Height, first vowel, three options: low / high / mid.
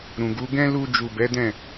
high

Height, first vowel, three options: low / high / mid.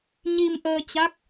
high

